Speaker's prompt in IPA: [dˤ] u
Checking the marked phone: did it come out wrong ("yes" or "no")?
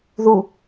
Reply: yes